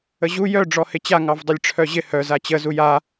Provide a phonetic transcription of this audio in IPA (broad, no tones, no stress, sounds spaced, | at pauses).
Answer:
ə ʑ u j œ ɖ͡ʐ ɔ h ɪ t͡ɕ a ŋ ɑ v dˤ ɪ lʲ ʈ͡ʂʰ œ ʑ ɪ h œ z a t͡ɕ ə z u j a